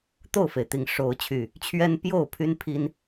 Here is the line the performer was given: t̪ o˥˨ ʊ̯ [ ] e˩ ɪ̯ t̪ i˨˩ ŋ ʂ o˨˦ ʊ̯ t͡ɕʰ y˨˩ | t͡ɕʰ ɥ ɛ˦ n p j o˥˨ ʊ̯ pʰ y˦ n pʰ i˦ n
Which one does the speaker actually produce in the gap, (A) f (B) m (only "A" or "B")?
A